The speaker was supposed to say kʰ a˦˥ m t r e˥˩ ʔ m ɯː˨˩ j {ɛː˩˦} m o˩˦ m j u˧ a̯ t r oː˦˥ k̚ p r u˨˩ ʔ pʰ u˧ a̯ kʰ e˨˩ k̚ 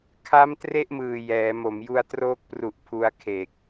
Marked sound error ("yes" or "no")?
no